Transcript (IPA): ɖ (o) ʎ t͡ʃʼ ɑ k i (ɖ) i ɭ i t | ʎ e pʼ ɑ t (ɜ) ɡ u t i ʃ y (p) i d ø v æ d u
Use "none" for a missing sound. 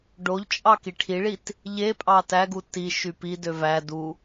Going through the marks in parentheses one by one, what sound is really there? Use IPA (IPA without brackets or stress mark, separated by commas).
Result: o, ʈʰ, æ, p